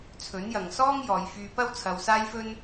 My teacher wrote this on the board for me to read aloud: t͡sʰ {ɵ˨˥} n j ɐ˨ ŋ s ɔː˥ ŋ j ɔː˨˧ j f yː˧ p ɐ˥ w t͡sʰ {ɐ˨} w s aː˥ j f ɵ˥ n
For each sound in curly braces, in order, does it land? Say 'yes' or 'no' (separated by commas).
yes, no